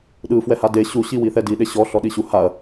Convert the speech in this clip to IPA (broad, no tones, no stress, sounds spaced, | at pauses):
ɗ ɯ f w ɛ h a d e ɕ u ɕ i w i θ ɛ d i ɗ e ɕ ɔ ɬ ɔ ɗ i ɕ u h a ɐ̯